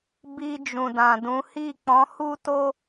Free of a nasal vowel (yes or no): no